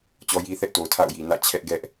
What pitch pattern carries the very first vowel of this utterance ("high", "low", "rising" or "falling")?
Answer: high